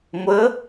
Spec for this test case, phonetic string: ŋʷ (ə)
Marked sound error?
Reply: no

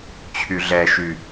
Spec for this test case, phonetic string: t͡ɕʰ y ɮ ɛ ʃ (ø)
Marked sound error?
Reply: yes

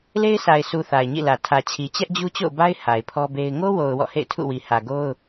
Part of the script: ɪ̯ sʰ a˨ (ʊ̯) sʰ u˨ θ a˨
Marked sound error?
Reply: yes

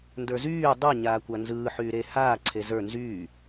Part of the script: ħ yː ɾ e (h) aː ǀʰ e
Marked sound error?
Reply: no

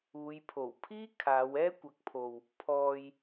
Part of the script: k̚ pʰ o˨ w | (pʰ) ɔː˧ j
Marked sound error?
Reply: no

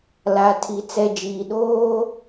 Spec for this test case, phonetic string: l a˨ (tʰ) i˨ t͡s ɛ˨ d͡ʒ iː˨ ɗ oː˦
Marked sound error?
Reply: no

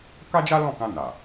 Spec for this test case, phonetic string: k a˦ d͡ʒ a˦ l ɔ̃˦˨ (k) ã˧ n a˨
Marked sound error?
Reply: no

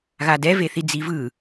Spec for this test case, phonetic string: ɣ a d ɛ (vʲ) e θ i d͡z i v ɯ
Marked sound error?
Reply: yes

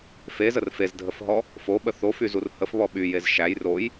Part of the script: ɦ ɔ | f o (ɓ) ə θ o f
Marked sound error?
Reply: no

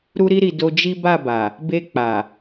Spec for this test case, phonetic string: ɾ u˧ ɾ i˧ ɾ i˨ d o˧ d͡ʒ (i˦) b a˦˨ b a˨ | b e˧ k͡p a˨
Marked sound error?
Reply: no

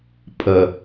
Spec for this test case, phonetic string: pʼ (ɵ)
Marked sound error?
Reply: yes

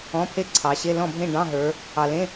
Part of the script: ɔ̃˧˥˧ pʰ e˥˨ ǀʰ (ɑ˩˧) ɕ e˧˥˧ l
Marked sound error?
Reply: no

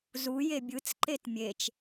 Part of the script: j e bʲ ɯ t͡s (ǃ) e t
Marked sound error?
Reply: no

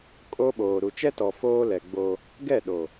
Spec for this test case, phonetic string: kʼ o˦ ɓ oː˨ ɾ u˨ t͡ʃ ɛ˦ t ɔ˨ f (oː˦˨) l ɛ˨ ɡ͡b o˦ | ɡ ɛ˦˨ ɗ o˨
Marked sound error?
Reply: yes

